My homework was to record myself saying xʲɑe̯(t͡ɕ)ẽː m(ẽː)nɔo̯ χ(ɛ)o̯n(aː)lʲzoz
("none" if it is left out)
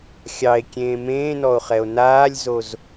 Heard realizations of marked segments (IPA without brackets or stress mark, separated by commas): kʲ, ẽː, ɛ, aː